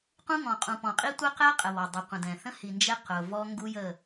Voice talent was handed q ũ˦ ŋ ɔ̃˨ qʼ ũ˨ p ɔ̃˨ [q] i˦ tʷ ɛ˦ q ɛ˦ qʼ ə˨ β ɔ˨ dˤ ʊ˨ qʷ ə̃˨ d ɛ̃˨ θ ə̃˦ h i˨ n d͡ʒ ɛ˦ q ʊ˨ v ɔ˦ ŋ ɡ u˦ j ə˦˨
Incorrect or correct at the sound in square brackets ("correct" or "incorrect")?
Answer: incorrect